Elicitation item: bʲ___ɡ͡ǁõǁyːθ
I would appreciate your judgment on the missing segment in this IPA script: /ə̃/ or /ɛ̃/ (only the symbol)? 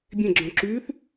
ɛ̃